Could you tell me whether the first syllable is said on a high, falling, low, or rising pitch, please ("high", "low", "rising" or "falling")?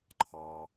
low